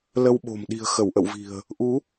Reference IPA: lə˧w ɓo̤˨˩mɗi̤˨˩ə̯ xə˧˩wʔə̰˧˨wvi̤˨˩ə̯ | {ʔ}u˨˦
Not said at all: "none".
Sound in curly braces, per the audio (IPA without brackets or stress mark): ʔ